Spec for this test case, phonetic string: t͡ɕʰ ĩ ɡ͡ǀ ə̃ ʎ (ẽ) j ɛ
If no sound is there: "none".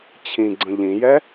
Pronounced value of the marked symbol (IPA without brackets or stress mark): ĩ